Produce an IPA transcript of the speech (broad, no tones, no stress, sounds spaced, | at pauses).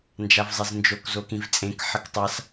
n d͡ʒ a v zˤ e z n d͡ʒ o k z o k ĩ v t͡sʼ ẽ k ħ ə k tˤ a s